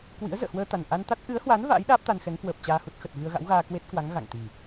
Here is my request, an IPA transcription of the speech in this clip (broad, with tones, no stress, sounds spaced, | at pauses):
k w ḭ˧˥ ə̯ z ə̰ː˧˨ h w əː˧ t̪ a˨˩ n ʔ a˧ n t̪ a˦˥ t̚ ʔ ɨ˨˦ ə̯ h w a˨˦ n v a̰ː˧˥ j ɗ aː˦˥ p̚ t̪ a˧ n x ɛ˨˦ ŋ k w əː˨˩ p̚ t͡ɕ aː˧ h u˦˥ t̚ x ə˨˩ t̚ v ɨ˧ ə̯ ɣ a̰˧˥ w ɣ aː˧ k w e˦˥ t̚ k w a˨˦ ŋ ɣ a̰˧˨ ŋ t̪ i˨˩